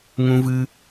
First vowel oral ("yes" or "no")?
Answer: no